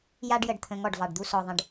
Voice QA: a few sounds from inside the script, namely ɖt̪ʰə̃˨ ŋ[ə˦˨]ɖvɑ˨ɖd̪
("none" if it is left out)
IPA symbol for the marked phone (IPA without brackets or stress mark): ɔ˦˨